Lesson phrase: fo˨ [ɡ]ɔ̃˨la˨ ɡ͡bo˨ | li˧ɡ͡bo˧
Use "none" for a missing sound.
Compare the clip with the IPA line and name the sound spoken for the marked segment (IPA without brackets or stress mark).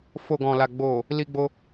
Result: ɡ